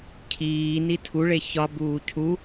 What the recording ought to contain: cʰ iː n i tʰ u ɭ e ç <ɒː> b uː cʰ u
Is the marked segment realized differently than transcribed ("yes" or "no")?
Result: yes